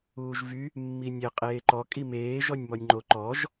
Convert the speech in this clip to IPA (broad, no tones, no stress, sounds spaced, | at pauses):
uː ʒ v y | mː i nʲ e qʼ eː ǃ ɔ kʼ i m eː ʒ ɔ nʲ m ɔ nʲ ŋ͡ǃ o ǃ ɔ ʒ